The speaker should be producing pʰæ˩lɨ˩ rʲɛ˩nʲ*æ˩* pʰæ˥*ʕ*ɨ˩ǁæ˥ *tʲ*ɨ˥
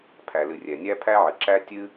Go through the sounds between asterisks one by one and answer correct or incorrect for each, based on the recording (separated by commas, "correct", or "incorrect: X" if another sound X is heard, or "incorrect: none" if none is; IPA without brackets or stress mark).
incorrect: æ˥, correct, correct